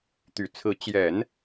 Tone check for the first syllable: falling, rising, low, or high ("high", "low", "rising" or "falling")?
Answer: low